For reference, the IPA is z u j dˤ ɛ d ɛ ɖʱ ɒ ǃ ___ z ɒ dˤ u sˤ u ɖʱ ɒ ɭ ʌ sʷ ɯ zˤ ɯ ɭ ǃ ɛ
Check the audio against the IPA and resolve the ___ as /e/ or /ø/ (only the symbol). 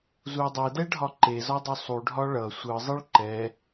e